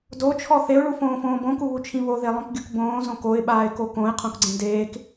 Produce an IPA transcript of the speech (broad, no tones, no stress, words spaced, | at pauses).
dot͡ʃʰɔ θeʊ̯ɭufõːfõː bõkuβut͡ʃʰĩ βoðelˠõkɡʲuk bõːzõ koɪ̯ɓaːɪ̯ko kõɪ̯qʰõkɡ͡ǀẽ deːk